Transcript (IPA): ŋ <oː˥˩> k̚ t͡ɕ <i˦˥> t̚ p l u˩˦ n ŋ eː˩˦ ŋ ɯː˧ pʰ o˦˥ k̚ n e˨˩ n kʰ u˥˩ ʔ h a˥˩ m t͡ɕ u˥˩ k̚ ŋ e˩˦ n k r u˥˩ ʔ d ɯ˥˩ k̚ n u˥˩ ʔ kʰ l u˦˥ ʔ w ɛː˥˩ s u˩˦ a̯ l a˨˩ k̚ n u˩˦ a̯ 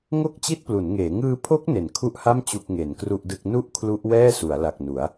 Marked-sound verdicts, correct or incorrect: incorrect, incorrect

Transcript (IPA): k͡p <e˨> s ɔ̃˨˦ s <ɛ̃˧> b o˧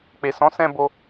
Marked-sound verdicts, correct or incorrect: correct, correct

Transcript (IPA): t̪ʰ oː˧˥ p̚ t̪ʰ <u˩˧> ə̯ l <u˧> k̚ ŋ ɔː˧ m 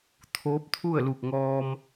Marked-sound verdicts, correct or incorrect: incorrect, incorrect

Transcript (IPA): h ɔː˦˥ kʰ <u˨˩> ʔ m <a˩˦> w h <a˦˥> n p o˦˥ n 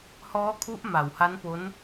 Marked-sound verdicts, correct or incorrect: incorrect, incorrect, correct

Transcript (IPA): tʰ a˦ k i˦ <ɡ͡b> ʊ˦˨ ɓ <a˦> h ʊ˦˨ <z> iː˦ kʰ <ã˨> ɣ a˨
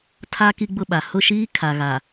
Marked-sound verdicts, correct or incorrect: correct, incorrect, incorrect, incorrect

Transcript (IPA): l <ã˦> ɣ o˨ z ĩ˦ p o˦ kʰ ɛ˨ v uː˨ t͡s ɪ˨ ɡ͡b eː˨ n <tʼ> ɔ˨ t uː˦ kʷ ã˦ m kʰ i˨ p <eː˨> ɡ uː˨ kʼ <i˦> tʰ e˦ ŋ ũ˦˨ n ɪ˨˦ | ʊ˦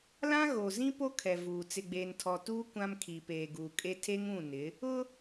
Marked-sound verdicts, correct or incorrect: correct, incorrect, correct, incorrect

